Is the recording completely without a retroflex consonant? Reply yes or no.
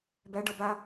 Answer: no